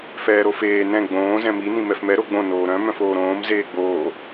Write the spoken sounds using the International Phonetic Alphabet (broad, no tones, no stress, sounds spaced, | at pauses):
f ɛː ɾ o f eː n ɛ̃ ɡ͡b õː z ɛ̃ m i n ĩ m ɛ f m ɛ ɾ o ɡ͡b õ n oː ɾ œ̃ m œ̃ f oː ɾ õː m z eː ɡ͡b oː